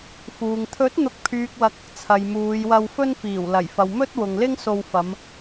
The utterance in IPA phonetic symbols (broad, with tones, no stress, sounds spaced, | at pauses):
f uː˨ ŋ t̪ʰ ɵ˨˥ t̚ n̪ ʊ˨ k̚ pʰ yː˨ k̚ w ɐ˨ k̚ | t͡sʰ ɐ˨ j m uː˨˧ j w ɐ˧ w f ɵ˥ n f iː˨˩ w l ɐ˨˩ j f ɐ˨ w m ɵ˥ t̚ w ʊ˨ ŋ l ɪ˥ ŋ s o˧ w f ɐ˨˧ m